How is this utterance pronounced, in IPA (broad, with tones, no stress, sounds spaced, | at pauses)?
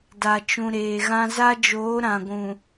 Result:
d a˨ t͡ʃ ũ˨ ɾ eː˨ ɣ ã˦ z a˦ d͡ʒ oː˨˦ ɾ ã˨ ɡʷ ũ˨